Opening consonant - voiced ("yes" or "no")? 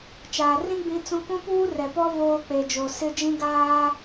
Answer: no